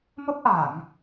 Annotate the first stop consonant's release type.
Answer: plain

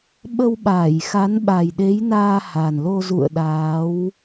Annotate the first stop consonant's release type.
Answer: implosive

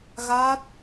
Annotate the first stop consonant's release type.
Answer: plain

